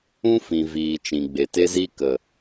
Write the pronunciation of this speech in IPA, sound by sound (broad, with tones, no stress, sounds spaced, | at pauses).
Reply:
ũ˦ f ĩ˨ v iː˨ t͡ʃ ĩ˨ ɡ͡b e˨ t e˦ z i˦ k ə˨